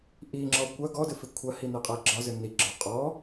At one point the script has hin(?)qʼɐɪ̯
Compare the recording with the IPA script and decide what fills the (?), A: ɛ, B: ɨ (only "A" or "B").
A